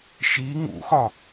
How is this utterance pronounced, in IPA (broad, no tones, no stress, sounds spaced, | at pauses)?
ʃ i ŋ ṵ x ɒ